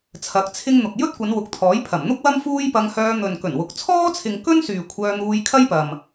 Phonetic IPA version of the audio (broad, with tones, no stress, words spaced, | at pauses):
t͡sʰɐ˨˥k̚t͡sʰɪ˥ŋ n̪ʊ˨k̚jɵ˥t̚kʷɐ˨˧n wʊ˨k̚t̪ʰɔː˨˥jpʰɐ˨˩m n̪ʊ˥k̚wɐ˥m fuː˥jpɐ˧ŋhœː˧ n̪ɵ˨nkɵ˨˩nwʊ˨k̚ t͡sʰɔː˥t͡sʰɪ˨ŋ kɵ˥n syː˨kʷʰœː˧n̪uː˧j kʰɐ˥jpɐ˨m